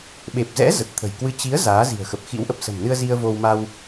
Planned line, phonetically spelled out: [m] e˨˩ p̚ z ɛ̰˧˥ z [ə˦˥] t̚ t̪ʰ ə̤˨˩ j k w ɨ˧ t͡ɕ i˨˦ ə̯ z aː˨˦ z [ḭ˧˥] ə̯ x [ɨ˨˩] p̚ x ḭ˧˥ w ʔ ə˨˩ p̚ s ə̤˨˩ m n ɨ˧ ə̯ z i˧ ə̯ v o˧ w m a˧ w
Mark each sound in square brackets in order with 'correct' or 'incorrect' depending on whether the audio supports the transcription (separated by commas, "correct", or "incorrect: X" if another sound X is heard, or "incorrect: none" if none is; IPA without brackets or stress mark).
incorrect: ɓ, incorrect: ə˨˩, incorrect: i̤˨˩, incorrect: ə˨˩